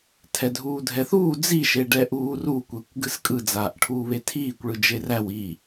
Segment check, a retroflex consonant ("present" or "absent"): present